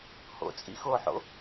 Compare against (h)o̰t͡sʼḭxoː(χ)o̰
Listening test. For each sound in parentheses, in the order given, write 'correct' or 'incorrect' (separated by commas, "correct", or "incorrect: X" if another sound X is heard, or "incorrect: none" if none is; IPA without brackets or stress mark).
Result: correct, incorrect: ħ